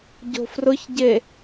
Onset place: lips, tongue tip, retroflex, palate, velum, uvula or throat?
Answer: palate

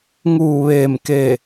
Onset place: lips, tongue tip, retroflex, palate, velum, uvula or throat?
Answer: velum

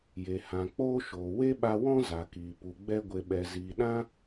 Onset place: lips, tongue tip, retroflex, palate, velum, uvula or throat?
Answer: palate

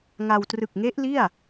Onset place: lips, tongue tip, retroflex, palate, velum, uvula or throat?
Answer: velum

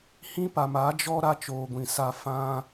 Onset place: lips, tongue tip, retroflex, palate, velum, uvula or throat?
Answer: throat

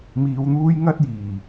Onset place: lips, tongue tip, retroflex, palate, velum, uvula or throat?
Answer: lips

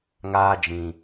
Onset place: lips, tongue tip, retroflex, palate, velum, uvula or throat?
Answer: velum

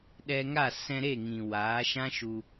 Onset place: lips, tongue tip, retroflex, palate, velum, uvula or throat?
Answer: tongue tip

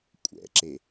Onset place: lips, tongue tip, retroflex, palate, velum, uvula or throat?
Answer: velum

